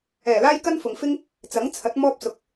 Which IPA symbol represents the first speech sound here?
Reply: ɛː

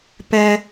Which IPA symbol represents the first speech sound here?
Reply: p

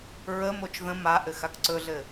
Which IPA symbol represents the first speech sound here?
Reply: ɹ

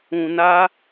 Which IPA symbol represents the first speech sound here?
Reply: ũ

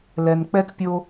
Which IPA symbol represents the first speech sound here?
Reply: l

